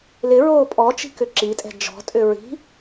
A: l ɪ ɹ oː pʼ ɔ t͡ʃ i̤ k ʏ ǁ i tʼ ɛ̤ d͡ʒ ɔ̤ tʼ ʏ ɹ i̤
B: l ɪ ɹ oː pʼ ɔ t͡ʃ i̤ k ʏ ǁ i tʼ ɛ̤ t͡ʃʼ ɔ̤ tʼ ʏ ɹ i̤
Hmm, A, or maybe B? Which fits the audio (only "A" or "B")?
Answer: A